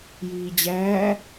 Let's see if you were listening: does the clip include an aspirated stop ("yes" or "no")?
no